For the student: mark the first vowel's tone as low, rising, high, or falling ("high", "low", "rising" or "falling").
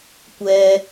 low